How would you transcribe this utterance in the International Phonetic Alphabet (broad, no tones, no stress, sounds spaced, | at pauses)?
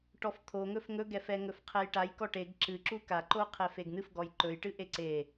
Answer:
ʈ ɔ f t̪ʰ o ŋ ɵ f ŋ ɵ ɡ ɛ f ɛ ŋ ɵ f qʰ ɛ j ʈ a j k ɔ ʈ e ɡ ǁ ɨ ǁ u k a ǃ o qʰ ɛ f e ɡ n̪ ɨ f ɡ ɔ j ǃ ɵ j ʈ ɨ ʔ e ǀ e